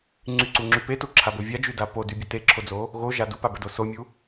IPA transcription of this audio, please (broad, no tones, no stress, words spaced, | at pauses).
ŋ͡ǀyǀuŋ͡ǁy petuǁʰabo vʲad͡ʒyda podybʲə teǁʰod͡zo | ɣoʒa dupabədo somʲu